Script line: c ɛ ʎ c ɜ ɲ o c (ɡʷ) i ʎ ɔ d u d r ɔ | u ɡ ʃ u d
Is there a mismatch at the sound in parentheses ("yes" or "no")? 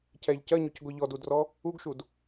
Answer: no